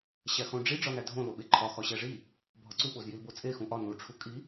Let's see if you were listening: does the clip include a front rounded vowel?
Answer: no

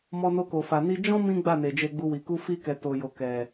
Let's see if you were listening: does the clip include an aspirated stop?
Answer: no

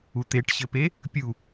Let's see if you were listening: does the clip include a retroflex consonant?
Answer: yes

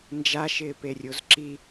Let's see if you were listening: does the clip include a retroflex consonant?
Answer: no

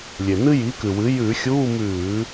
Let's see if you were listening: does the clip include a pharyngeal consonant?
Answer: no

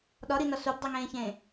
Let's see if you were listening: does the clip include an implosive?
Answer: yes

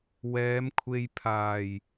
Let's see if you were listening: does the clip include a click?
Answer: no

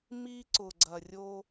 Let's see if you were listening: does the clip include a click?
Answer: yes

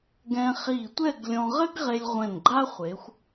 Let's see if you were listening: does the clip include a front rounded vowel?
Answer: no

